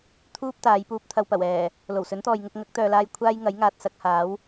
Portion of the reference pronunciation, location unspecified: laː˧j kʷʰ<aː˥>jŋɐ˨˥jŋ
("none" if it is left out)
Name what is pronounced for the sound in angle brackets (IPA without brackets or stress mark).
aː˥